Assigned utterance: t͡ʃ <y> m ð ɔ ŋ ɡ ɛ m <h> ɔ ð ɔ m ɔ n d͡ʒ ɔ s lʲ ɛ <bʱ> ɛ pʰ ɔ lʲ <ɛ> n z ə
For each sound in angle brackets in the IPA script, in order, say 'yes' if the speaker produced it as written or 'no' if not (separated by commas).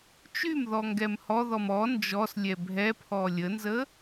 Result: yes, yes, yes, no